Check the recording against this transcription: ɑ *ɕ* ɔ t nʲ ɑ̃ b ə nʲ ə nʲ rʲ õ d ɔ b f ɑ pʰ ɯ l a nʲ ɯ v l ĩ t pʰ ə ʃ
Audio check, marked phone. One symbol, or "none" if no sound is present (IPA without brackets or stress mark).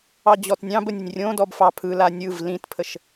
d͡ʑ